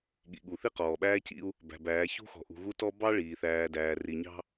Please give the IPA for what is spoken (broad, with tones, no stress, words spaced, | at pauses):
ɠḭ˨ɠu˨ θi˦qɔː˨ɓæː˦cḭ˦u̯ | bæ̤˨bæː˨˦ çṳ˦xɔ̤˨ ʔṳ˨ɣu˦tɔ˦ bɑ˦ ɭiː˨θæː˨dæː˨ ri˨ɲɑ̤˦